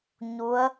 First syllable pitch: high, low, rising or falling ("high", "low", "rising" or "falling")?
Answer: rising